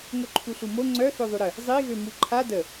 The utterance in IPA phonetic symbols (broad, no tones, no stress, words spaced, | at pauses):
ŋoǃʰuɬumo ŋ͡ǀœ θøðˤyɾə | zˤiɣø muǃʰa də